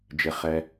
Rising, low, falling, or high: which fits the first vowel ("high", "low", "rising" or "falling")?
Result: low